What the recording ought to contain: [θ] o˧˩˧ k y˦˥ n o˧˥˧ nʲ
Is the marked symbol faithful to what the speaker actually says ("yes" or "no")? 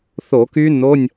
yes